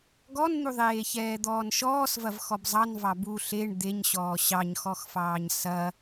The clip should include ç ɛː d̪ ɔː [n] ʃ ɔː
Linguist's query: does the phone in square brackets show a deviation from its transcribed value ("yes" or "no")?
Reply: no